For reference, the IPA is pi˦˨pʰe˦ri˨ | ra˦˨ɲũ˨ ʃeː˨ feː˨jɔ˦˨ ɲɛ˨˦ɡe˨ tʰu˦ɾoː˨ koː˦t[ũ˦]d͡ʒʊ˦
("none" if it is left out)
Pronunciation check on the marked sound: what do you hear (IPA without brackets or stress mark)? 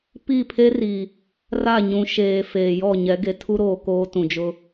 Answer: ũ˨